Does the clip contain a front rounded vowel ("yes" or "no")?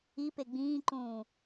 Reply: no